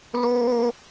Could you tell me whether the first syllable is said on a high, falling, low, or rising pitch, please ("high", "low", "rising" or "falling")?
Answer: high